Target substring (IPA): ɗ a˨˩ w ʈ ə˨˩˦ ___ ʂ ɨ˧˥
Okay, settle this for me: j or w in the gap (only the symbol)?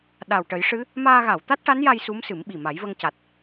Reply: j